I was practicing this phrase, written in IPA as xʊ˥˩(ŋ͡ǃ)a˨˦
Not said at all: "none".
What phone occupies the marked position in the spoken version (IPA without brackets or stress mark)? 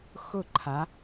ǃʰ